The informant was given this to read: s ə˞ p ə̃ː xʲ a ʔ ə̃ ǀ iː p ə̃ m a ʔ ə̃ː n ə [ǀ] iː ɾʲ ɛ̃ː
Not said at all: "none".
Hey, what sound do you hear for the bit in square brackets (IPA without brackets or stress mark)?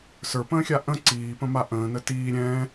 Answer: t